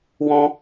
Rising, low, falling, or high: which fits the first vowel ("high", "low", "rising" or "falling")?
high